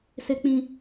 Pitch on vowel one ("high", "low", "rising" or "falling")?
high